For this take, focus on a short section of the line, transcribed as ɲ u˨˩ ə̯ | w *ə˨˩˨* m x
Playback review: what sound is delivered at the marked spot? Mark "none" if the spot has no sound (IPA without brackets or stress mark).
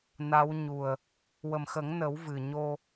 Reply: ə˨˩